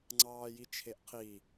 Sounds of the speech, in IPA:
ŋ͡ǀɑːjit͡ʃʰeʔqʰi

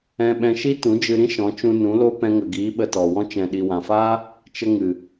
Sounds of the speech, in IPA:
ɛ̃˧ɓɛ̃˧ʃi˦ tũ˨˦d͡ʒɨ˧ɾĩ˦ ʃɔ̃˨˦t͡ʃũ˧nũ˨˦ lo˦ pɛ̃˧ŋə˨ɡiː˨˦ ɓə˧tɔ˨wɔ̃˦ t͡ʃɛ̃˨ɗi˨wã˨faː˦ | t͡ʃə˧ŋɨ˨

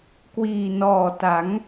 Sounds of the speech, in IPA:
kwiː˨˩nɔː˨˩ ta˩˦ŋ

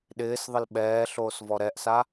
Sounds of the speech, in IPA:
ɗɪːsðˤɪl ɓɛːɬoːs vɔɾɛʔsa

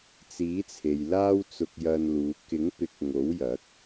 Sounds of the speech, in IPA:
t͡siː˨˥t͡sʰe˨jlaː˥w t͡sʊ˧k̚jɐ˧nluː˨˧ kɪ˨˥ŋpɪ˨˥k̚ ŋo˨˥wjɐ˨˥k̚

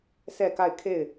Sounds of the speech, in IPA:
sʰɛ˦˨ka˦˨ɪ̯kʰe˦˨ɪ̯

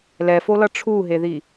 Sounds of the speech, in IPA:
lɛfolʌ ʈ͡ʂʰuɦeði

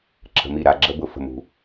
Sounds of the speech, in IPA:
ǁə̤˧mi˦˨ɾa˧ ɡ͡ǁə˦bʊ˧ fə̤˨mṳ˨

